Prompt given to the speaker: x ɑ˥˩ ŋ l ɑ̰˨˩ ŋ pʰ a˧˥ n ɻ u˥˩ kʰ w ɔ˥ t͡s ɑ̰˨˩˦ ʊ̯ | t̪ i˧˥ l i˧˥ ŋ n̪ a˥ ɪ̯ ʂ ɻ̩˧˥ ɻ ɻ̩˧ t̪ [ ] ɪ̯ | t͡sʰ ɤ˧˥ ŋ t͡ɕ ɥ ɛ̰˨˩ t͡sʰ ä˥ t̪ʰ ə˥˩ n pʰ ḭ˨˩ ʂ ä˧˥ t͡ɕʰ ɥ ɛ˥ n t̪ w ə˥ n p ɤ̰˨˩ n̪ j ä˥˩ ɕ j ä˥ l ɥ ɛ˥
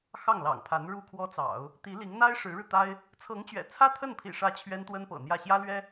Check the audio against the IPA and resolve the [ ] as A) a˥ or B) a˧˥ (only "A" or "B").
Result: A